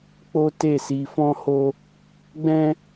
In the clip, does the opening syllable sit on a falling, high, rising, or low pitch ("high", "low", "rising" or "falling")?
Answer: high